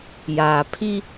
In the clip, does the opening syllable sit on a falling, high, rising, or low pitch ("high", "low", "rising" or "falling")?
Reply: low